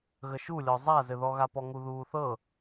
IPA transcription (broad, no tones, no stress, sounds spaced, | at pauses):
ɣ ə ʃ u lʲ ɔ zˤ a z ɘ ð ɔ ɣ a p ɔ ŋ u ð uː θ ɤ